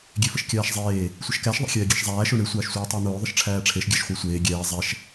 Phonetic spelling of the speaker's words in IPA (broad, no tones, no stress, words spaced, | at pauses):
ɡʲefəʃkʲaːʃzˤeː | sʷəʃkæʃ ðˤæ̰xʲɛːɡʲeʃzˤæː ʃoɳe sʷaːʃsʷaːtˤəːn̪oː ðˤəʃʈ͡ʂʰæːʈ͡ʂʰeʃ ɡʲæʃχʷæsʷeː ɡʲɛː zˤɛʃ